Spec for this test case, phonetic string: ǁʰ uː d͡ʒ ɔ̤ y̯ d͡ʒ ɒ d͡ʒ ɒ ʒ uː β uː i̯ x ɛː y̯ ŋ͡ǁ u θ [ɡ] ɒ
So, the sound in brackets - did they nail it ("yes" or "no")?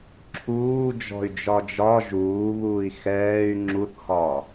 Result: no